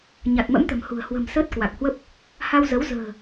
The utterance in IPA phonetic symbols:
ɲ a˨˩ t̚ m ə̰˧˥ m t̪ ə̤˨˩ m h ṳ˨˩ ə̯ h w ə̤˨˩ m s əː˦˥ t̚ k w a˨˩ k̚ h w ə˦˥ p̚ | h a˧ w z ə˨˦ w z ə̤ː˨˩

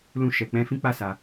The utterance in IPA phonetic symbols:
l ũ˧ ʃ ɛ˨ k͡p ɛ̃˨˦ f ĩ˦ k͡p a˦˨ s a˨

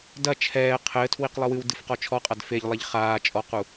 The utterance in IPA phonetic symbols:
d ɐ t͡ʃʰ ɛː qʰ ɘː tʰ w i q lˠ ɨ w ɨ w d ɨ f q ɔ t͡ʃʰ ɔ qʼ a d f e ʎ lˠ e ʎ χ aː t͡ʃʼ ɔ q u

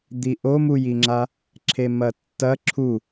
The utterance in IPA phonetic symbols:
d̪ i ʔ o m u j i ŋ͡ǁ a | ǁʰ e m ɐ tː ɐ ǁʰ u

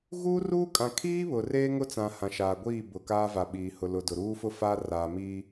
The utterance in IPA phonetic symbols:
ɣ uː˦ r uː˦ kʼ ã˨ kʰ iː˦ β ʊ˨ r eː˦ ŋ ʊ˦ t͡s ã˨ h ã˨ ʃ aː˨ ɡʷ iː˦˨ b ʊ˨ k aː˦ v a˨ ɓ iː˨ h ʊ˨ l ʊ˨ d ʊ˨ ɾ uː˦ f ʊ˦ f aː˦ r aː˨ m iː˦

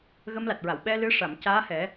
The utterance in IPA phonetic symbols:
ɣ ə˧ m l a˨˩ t̚ ɹ a˨˩˨ w ɓ ɛ˧ l ɨ˧ ʂ a˨˩˨ m c aː˧˥ h ɛ˨˩˦

